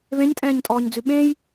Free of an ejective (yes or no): no